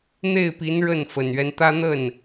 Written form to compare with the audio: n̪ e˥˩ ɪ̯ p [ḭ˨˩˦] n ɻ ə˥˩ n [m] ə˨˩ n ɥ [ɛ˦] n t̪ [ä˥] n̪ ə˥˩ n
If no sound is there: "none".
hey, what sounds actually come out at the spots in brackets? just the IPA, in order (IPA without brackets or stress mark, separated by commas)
i˧˥, f, ɛ˦, ä˥